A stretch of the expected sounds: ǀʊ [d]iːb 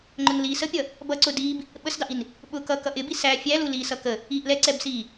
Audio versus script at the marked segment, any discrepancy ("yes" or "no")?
no